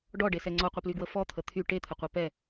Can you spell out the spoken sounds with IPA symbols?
ɖ ɔ ɖ e s ɛ ŋ͡ǀ ɔ qʷ ə p l y ɡ w ə f ɔ t̪ʰ ə t̪ʰ y ʈ e t̪ʰ ə qʷ ɛ p ɛ

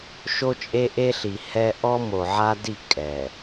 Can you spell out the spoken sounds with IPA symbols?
ʃ o˦ t͡ʃʼ e˦ ʔ e˦ ɬ i˨ h ɛ˦ ʔ ɔ˦ m o˨ ʕ a˦ d i˦˨ kʼ ɛ˨

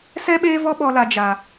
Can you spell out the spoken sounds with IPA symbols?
s ɛ˦ ɓ eː˦ v ɔ˦ ɓ ɔ˦ l a˦ d͡ʒ a˦

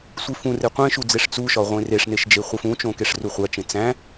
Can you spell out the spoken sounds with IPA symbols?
sʷ i f ũ r e qʷ ẽ ʃ u d͡z e ʂ t͡s u ʃ ɒ ʁʷ ẽ r e ʂ n e ʃ d͡ʒ e χʷ e f ũ t͡ʃ õ k e ʂ r u χʷ æ t͡ʃ ẽ t͡s æ̃

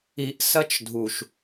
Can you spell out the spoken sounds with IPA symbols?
i˨ ʔ s ɐ˦ t͡ʃ dʱ u˨ ʃ

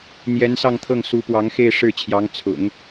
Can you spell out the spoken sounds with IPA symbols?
n̪ j ɛ˧˥ n s ɑ˥˧ ŋ t̪ʰ ɤ˥˩ ŋ s u˧˥ p w ɑ˧˥ ŋ x e˥˧ ɪ̯ ʂ ɻ̩˥˩ t͡ɕʰ j ɑ˧˥ ŋ t͡sʰ ʊ̰˨˩˦ ŋ

